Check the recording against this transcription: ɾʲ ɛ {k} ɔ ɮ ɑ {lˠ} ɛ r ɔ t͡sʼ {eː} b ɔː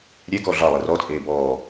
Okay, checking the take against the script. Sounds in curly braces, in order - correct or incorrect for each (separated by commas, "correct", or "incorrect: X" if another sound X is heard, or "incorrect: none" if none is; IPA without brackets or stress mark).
correct, correct, correct